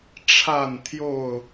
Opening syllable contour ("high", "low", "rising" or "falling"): falling